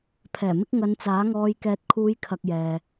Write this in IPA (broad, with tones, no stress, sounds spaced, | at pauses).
pʰ ɛː˨˩ m ɪ˧ k̚ ŋ ɐ˨˧ n t͡s aː˨˥ ŋ ɔː˧ j k ɛː˨ t̚ kʰ uː˨˧ j kʰ ɐ˨ k̚ j ɛː˨